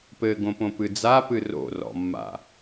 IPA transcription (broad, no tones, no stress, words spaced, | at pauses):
pɘɡõpõpɨ d͡zapɨ ro̰rɔ̰mːa̰